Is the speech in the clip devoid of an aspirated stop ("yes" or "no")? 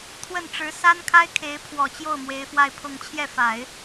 no